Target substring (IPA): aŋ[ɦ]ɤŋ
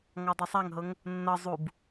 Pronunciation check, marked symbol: correct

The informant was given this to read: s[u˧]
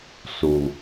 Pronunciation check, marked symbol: incorrect: u˩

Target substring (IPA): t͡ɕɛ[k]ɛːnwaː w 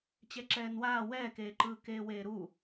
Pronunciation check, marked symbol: incorrect: ǁ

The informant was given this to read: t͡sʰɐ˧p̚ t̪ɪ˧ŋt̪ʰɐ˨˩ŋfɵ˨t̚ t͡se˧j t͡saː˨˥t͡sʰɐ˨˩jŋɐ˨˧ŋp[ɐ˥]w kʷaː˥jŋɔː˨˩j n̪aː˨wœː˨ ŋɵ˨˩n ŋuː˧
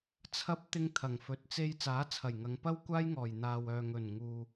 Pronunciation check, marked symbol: correct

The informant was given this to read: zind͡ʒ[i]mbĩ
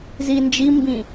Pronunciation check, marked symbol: correct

